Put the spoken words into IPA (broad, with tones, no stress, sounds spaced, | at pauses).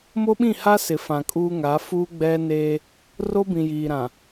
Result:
m o˦ ɓ ĩ˦˨ h a˦ s ɪ˨ f ã˨ kʼ uː˦ ŋ a˨˦ f uː˦ ɡ͡b ɛ˦ n eː˦ | r o˦ b ĩ˨ j iː˨ ɾ ã˨